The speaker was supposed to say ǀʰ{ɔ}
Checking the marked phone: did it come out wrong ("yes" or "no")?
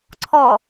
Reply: no